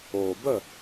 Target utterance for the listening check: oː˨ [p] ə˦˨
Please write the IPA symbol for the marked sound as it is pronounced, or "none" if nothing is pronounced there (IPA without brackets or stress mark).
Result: b